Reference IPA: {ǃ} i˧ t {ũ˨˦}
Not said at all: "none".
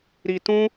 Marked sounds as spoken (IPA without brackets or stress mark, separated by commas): ɾ, ũ˦